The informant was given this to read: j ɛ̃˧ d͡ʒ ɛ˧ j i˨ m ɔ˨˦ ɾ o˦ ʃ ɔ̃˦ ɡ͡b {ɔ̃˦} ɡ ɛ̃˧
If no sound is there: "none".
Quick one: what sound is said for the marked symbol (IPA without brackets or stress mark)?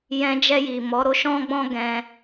ɔ̃˦